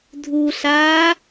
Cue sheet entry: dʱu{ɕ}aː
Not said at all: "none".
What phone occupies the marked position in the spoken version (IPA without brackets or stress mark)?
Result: ɬ